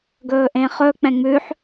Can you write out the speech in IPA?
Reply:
ɡɵːʔẽχɵ k͡pɛ̃ŋ͡mʉħ

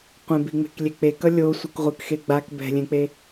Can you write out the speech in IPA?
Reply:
qʷẽbiŋ͡me̤k lʲek͡pekʌ lʲo sʷɯkʁʷɯk xeɡ͡bak bɛ̤lʲẽk͡pe

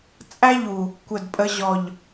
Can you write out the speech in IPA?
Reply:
t͡sʼæ˦ʎu˨ | kʷə˦˨dpʼə˦ ʑɔ˨ʎ

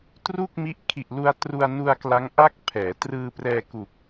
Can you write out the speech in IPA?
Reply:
tru˥˩k̚mi˦˥ʔ kʰi˨˩ʔlu˧a̯ tru˧a̯nu˧a̯kla˦˥ŋ ʔa˥˩k̚pʰɛː˩˦ trɯː˧prɛː˧ku˨˩k̚

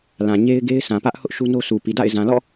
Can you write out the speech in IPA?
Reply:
lã˨ɲe˦ɪ̯ɡe˦ɪ̯ sã˨pä˦ʔ hʊ˦ʔ ʃu˦no˦sʰu˨ pi˨da̰˦˨ɪ̯ zã˨lɔ̰˦˨

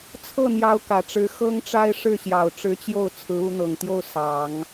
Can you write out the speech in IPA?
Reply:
t͡sʰɤ˥˩n̪jɑ˧˥ʊ̯ kä˨˩ʈ͡ʂɻ̩˧˥ xɤ˥ŋʈ͡ʂa˥ɪ̯ ʂɻ̩˥˩ɕjɑ˨˩ʊ̯ʈ͡ʂɻ̩˧˥t͡ɕjo˥˩ʊ̯ t͡sʰɹ̩˧˥u˧˥n̪ɤ˨˩ŋt̪jo˥˩ʊ̯ sɑ˨˩˦ŋ

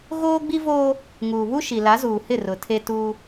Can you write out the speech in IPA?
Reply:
ɣoː˦ɡ͡bi˦voː˦ | ŋuː˨βu˦ʃi˨ la˨˦zuː˨hɪ˦˨ rʊ˨tʰe˦ tuː˦

